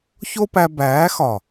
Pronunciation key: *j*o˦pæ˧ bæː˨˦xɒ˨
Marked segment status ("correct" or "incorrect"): incorrect